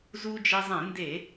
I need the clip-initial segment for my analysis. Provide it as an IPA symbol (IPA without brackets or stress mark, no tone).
z